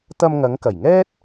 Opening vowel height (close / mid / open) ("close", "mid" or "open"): open